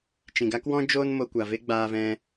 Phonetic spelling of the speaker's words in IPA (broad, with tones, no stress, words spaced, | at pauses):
t͡ʃĩ˨ɡa˦kwɔ̃˦ d͡ʒoː˦nmo˧kʷa˨ ve˦ɡ͡baː˧vɛ̃˧